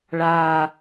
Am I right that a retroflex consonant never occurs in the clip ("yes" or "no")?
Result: no